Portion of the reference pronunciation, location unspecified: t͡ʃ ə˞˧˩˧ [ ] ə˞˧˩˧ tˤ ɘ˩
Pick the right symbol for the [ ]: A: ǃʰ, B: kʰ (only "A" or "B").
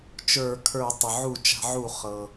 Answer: B